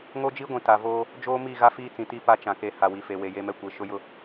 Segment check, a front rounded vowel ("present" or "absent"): absent